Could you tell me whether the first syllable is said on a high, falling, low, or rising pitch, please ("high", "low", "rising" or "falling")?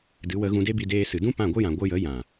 rising